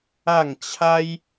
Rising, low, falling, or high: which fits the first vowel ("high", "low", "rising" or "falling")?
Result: falling